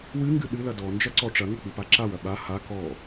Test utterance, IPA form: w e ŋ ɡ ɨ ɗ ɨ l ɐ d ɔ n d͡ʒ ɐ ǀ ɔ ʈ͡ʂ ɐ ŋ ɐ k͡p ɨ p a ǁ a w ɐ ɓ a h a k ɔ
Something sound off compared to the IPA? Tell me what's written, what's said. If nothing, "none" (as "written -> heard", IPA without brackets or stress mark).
e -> ɨ